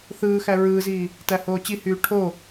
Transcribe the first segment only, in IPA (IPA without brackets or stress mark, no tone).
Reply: θ